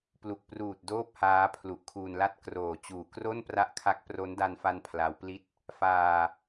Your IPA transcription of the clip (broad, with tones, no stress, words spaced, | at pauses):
plu˨˩k̚pruː˨˩t̚ doː˥˩p̚haː˦˥ pʰlu˨˩ʔkʰuː˧nla˥˩t̚ kroː˨˩t͡ɕuː˨˩kro˥˩n pra˦˥ʔkʰa˦˥k̚ pro˦˥nda˧nfa˧n pʰla˦˥wpli˥˩t̚ | faː˧